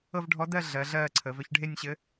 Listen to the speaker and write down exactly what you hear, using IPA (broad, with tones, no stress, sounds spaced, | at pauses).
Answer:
ɤ˥˧ v ɖʱ ɔ˧˥ d ɜ˥˧ ɮ ɜ˩˧ ɮ ɜː˥˧ ǀʰ ə˩˧ v œ˧˥ ç ɖʱ e˥˧ nʲ ɕ ɘ˧˥